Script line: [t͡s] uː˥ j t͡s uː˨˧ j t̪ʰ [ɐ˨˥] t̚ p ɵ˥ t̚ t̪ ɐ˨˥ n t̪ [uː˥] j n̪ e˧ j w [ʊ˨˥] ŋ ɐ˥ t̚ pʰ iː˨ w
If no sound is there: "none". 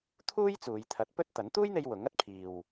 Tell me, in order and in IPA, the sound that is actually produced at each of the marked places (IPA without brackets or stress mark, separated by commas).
t̪ʰ, ɐ˨˥, uː˥, ʊ˨˥